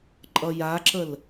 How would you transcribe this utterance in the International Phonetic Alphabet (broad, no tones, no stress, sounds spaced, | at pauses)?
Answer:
ǃʼ ʌ j a ǁ ə l